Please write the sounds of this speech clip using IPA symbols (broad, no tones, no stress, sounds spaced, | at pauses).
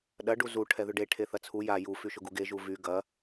ɗ ɐ ɖ u z u ʈʰ ɛ ð ʏ ɖ e ʈʰ e θ ɐ t͡sʰ u j a j u f y ʃ ʊ ɡ u ɡ e ʒ u v y ɡ ɐ